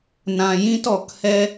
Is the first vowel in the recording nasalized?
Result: yes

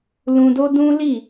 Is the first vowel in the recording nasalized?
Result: yes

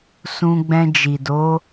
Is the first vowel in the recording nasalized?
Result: yes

